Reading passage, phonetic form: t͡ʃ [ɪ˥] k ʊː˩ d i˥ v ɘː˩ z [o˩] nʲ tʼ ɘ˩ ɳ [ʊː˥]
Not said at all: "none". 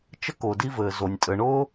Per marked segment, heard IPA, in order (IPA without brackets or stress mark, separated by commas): ə˥, o˩, ʊː˥